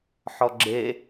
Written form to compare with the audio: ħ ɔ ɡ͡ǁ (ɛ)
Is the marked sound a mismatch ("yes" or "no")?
yes